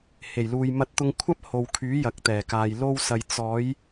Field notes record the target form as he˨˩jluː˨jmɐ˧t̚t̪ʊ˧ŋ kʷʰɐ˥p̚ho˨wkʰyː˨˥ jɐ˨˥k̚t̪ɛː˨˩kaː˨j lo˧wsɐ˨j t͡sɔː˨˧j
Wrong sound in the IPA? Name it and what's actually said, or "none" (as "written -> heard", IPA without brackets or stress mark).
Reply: none